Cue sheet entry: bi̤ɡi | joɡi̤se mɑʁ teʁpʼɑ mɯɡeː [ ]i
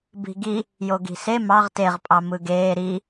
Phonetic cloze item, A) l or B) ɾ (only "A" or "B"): B